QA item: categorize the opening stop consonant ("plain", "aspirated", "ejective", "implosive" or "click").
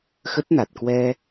plain